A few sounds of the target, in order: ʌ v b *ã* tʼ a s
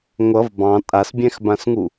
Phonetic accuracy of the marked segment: incorrect: ɑ̃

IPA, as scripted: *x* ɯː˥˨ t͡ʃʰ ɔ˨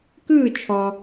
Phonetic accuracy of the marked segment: incorrect: k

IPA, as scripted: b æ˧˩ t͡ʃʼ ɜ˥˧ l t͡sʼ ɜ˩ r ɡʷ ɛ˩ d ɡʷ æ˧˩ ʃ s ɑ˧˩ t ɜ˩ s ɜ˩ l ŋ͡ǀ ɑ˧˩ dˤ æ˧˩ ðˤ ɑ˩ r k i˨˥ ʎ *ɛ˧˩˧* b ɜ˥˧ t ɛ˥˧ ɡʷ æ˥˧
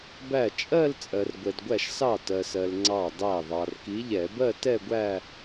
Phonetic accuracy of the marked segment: correct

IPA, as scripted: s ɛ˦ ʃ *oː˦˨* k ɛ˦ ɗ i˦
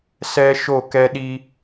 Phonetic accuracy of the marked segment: incorrect: o˦˨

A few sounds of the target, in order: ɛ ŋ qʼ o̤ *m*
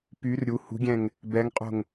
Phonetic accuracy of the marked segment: incorrect: ŋ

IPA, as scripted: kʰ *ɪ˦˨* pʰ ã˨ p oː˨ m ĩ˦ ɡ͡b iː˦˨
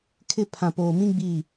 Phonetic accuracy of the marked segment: correct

